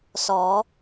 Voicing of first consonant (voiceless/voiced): voiceless